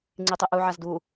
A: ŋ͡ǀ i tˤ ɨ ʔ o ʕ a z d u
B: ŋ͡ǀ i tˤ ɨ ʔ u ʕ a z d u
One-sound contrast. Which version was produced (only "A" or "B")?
B